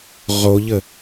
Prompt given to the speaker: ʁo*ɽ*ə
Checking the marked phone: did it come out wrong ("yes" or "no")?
yes